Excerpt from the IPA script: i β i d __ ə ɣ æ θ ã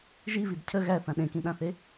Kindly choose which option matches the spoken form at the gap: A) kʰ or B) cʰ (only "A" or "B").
B